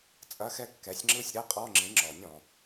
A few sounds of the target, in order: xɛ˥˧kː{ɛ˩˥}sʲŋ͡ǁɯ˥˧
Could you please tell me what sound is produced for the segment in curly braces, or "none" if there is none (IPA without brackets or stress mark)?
ɛ˩˥